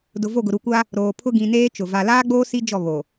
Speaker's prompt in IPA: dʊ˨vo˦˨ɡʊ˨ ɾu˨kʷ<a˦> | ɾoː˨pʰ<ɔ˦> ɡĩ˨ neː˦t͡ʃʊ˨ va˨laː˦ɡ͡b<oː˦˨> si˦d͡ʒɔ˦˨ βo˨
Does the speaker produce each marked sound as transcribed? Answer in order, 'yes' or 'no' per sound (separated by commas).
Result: yes, no, no